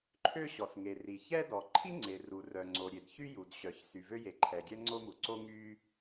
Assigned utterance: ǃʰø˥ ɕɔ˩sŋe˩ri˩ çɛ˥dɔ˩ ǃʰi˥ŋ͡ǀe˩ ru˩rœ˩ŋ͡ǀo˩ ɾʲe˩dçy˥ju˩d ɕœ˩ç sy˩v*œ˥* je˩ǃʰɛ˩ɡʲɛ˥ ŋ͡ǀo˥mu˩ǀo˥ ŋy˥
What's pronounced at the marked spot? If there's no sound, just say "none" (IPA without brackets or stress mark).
ø˥